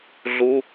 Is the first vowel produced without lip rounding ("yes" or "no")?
no